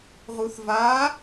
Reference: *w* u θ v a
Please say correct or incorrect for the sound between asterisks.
incorrect